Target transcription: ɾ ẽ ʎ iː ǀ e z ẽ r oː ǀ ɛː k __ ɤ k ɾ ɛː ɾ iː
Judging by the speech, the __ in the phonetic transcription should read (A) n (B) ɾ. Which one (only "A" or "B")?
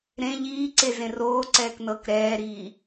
A